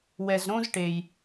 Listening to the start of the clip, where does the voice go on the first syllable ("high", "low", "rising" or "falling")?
low